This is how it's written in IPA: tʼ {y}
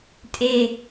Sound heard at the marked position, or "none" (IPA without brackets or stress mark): e